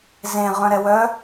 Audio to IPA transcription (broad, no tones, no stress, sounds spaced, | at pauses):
z ẽ ʁ œ̃ ɾ ɛ w œ